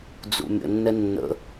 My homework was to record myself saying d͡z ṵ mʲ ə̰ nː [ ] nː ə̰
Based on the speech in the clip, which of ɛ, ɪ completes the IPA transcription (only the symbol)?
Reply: ɛ